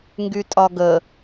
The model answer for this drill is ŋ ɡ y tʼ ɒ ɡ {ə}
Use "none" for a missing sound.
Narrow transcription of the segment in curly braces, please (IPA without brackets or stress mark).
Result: ə